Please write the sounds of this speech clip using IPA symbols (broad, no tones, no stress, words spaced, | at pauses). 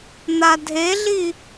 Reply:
n̪adʱeɮi